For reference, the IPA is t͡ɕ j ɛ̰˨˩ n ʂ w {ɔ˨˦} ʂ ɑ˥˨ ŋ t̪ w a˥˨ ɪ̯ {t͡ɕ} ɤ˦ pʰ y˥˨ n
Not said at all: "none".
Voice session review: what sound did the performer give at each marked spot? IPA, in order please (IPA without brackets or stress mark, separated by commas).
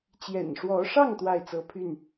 ɔ˨˦, t͡s